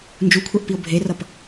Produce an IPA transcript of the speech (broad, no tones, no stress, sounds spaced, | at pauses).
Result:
n d͡ʒ u kʷʰ ɛ ʔ p i o̯ bʱ e r ʌ p